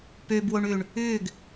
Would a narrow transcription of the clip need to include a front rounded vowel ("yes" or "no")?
yes